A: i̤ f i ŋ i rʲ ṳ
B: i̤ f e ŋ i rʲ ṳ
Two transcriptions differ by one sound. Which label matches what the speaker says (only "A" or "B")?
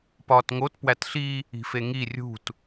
B